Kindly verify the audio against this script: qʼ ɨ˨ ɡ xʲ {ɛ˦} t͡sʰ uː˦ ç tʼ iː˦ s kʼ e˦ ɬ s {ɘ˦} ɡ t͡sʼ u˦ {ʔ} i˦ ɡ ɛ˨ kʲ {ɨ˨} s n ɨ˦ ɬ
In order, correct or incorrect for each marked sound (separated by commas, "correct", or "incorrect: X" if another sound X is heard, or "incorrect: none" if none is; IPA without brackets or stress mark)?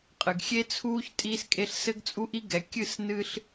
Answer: incorrect: e˦, correct, correct, incorrect: ɨ˦˨